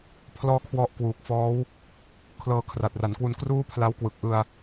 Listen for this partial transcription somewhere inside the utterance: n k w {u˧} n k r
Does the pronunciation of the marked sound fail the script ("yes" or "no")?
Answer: no